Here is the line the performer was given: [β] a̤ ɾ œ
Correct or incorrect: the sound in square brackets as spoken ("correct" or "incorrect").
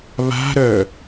correct